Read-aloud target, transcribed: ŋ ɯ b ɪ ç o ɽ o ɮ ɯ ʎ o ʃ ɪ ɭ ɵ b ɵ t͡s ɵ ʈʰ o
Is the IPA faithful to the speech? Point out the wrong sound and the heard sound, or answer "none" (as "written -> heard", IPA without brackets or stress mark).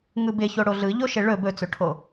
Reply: none